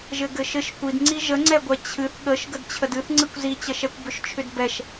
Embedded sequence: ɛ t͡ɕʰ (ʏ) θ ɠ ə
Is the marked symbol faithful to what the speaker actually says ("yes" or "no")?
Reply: no